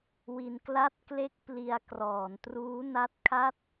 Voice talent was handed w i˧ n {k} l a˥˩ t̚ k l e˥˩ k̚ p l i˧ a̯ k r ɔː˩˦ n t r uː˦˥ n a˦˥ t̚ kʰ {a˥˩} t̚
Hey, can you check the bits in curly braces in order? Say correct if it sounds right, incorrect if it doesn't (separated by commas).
correct, correct